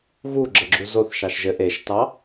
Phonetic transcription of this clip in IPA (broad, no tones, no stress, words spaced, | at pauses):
ɣuɡ͡ǁəɡ͡ǁu zoθʃɑʃ ʒɘ ʔeʃtɑ